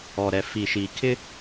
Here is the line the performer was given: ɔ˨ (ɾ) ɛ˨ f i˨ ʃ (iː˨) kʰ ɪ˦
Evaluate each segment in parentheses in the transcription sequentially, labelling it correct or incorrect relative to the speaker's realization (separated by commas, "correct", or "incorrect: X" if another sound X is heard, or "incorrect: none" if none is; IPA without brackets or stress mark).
correct, correct